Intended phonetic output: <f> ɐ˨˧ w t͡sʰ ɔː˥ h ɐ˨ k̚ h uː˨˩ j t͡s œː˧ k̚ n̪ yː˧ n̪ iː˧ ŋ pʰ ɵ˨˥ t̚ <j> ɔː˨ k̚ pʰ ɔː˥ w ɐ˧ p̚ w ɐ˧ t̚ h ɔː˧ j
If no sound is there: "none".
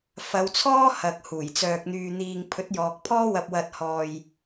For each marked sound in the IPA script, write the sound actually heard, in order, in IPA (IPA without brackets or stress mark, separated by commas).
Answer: f, j